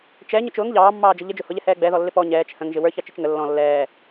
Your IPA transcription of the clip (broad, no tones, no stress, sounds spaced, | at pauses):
t͡ʃ ɛ ɲ ʊ t͡ʃ ʊː ŋ ʎ ɑː mː ɑː d͡ʒ ə ʎ ə d͡ʒ ʊ h ʊ ʎ ɛ h ɛː ɡ͡b ɛ ð ɔ lː ɪ p ɔ ɲ ɛː t͡ʃ h ə̃ ŋ ʒ ɪ w ə˞ ç ɑ t͡ʃ ɪ t͡ʃ ŋ ə lː ɔ̃ lː ɛː